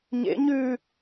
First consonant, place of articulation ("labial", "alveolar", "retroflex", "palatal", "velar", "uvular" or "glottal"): palatal